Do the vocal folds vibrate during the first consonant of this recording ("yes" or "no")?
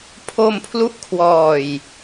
no